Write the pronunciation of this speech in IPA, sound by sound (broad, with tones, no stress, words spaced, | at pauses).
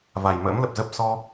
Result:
va˨˩j mə̰ː˧˥mlə˨˩p̚zə˦˥p̚ sɔ˧